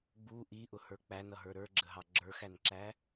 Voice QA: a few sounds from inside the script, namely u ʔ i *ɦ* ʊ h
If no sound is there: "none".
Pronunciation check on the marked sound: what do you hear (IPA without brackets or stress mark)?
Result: ʔ